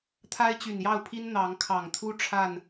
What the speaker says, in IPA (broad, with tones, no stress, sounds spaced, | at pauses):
t̪ʰ a˦ ɪ̯ t͡ɕ y˨˩ n j ɑ˥˨ ʊ̯ pʰ i˦ n n̪ ɑ˨˦ ŋ kʰ ɑ˨˩ ŋ t̪ʰ u˦ ʈ͡ʂʰ a˥˨ n